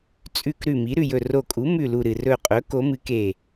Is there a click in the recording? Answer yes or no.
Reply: no